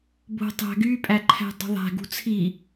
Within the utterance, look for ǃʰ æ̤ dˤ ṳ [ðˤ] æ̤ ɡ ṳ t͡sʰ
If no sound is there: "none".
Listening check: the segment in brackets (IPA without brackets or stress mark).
ðˤ